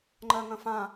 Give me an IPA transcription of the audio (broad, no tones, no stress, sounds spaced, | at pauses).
ŋ͡ǃ ɜ ŋ ə̃ f ã